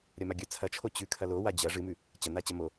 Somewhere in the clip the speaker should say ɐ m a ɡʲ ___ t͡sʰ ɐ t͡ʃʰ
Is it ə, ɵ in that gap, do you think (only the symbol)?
ɵ